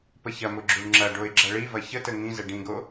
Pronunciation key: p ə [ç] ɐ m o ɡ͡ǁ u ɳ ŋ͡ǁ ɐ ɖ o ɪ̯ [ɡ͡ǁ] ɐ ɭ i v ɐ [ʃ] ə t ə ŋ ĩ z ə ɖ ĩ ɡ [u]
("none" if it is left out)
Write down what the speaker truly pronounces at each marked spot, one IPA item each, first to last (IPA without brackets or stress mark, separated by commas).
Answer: ç, ɡ͡ǁ, ç, o